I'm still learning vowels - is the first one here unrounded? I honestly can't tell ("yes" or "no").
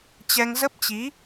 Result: yes